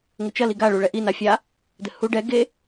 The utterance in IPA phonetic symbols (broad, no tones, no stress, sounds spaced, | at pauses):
ŋ ɘ t͡ʃ ɐ l i ɡ a ɭ u ɭ ɛ ʔ i n a fʲ a | d ɘ h u ɖ ɛ ɡ e